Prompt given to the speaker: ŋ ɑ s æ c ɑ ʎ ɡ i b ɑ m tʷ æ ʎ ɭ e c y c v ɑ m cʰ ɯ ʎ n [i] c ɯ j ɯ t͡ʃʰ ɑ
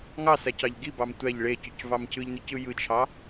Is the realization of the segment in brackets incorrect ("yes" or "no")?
yes